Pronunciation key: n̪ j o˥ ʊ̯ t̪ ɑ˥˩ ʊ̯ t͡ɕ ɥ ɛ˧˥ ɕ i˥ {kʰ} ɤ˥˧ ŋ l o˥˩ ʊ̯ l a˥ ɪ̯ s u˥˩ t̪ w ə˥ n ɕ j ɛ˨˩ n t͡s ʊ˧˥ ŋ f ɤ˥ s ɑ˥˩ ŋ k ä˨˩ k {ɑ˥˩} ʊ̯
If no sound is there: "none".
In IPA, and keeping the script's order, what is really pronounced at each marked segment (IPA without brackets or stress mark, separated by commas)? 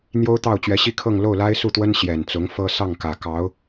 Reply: kʰ, ɑ˧˥